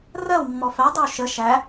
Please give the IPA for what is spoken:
rɜwmːɔ fædˤəw ʃə ʃæ

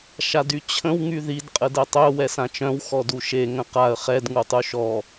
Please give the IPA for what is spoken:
ʃadyt͡ɕʰə̃w ŋyðid qʼədɛtˤœ wɛsãt͡ʃœ̃w xɔduʃe ŋə̃qaə̯ χɛd ŋutˤuʃɔ

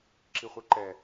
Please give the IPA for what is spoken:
ǁiχʷɛǃɛ

